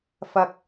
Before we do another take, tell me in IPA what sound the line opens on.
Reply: f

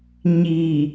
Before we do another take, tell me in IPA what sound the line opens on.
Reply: ɲ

